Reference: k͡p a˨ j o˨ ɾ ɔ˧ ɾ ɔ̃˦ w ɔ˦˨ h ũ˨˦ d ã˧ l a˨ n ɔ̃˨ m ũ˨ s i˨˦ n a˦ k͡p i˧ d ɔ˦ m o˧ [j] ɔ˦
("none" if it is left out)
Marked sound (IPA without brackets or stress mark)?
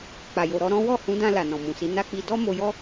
j